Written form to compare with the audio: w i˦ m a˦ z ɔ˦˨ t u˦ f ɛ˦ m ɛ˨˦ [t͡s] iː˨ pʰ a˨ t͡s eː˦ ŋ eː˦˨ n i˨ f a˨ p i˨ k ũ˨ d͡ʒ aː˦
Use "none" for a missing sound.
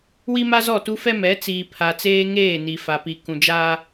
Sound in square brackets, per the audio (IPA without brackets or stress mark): t͡s